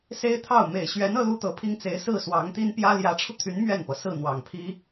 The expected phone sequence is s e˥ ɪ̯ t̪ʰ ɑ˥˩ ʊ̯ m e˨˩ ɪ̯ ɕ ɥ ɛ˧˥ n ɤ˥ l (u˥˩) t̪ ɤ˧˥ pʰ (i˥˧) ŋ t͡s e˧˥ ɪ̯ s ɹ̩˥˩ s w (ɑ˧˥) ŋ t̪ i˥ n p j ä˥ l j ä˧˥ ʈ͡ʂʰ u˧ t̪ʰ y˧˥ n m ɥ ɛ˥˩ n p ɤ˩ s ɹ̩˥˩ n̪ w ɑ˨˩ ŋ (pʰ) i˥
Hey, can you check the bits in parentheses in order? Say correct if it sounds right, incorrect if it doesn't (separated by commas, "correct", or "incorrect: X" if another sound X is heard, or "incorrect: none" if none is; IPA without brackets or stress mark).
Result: incorrect: u˥, incorrect: i˥, correct, correct